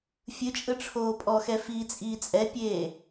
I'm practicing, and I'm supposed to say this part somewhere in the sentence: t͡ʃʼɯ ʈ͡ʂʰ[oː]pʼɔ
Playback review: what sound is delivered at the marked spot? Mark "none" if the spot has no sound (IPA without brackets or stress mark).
oː